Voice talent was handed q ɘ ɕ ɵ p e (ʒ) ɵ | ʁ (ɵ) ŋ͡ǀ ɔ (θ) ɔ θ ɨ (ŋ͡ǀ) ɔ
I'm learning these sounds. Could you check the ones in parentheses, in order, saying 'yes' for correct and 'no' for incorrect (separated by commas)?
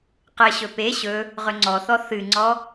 no, yes, yes, yes